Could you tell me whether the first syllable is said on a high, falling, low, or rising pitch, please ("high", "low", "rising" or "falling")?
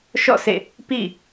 falling